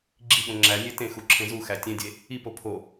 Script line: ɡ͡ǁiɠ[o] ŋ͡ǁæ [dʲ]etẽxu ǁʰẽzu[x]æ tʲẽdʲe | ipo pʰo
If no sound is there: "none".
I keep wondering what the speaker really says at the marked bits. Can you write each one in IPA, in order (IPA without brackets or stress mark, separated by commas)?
õ, nʲ, x